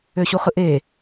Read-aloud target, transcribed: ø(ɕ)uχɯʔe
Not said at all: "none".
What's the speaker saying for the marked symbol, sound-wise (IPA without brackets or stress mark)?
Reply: ɕ